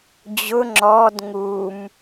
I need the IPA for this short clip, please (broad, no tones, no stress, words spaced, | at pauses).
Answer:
d͡ʑʊ ŋ͡ǁɔd ŋum